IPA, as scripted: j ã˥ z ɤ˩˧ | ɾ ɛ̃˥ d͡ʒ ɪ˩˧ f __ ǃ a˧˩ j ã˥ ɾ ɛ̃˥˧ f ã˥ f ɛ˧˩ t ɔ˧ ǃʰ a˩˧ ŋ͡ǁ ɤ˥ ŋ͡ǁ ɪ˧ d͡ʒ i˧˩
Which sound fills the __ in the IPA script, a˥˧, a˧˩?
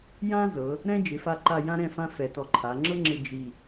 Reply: a˧˩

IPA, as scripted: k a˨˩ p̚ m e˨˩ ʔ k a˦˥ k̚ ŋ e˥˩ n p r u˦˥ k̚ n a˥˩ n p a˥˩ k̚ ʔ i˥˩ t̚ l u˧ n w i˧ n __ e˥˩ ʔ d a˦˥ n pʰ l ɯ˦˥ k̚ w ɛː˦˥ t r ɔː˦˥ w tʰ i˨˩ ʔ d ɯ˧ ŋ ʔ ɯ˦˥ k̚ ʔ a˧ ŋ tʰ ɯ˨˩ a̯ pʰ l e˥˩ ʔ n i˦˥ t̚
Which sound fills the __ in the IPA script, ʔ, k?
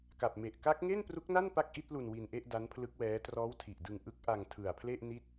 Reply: ʔ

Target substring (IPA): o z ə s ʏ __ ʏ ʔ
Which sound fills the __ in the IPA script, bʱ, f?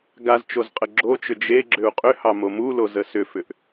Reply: f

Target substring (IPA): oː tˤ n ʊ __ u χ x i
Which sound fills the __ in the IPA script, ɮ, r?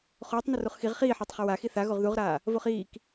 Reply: r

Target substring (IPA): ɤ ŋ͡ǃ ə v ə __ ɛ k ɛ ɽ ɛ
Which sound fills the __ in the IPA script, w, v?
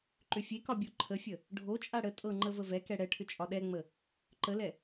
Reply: v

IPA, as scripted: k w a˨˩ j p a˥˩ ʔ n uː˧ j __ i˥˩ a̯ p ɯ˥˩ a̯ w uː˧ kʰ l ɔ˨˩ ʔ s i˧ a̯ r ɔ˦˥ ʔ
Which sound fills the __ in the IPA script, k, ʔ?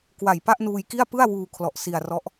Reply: k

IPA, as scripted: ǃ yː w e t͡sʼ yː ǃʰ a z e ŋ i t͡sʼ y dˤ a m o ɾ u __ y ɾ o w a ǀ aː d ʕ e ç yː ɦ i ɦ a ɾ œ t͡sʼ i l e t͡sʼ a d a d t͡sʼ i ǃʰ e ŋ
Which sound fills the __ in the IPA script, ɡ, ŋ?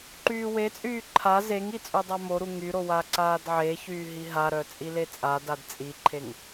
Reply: ŋ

